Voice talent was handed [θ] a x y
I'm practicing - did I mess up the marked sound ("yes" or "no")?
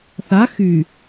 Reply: no